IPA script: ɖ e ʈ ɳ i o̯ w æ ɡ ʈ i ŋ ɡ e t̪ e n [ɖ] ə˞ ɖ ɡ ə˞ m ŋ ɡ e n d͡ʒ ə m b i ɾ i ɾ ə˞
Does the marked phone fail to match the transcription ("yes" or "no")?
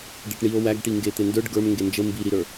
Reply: yes